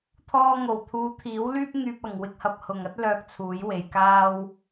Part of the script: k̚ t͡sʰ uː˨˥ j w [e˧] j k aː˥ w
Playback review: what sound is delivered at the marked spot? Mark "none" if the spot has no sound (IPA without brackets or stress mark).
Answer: e˨